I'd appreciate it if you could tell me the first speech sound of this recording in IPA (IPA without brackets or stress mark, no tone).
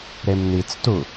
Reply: ɾ